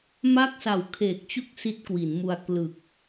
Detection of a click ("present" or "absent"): absent